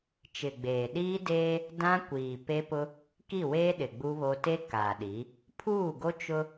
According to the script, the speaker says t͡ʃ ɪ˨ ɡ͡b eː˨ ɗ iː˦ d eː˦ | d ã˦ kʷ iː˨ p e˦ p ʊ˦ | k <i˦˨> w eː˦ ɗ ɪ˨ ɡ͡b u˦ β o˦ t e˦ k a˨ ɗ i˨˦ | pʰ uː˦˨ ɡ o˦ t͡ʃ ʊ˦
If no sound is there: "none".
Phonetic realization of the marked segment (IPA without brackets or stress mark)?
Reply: i˦˨